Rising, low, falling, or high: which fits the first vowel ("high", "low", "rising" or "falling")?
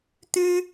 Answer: high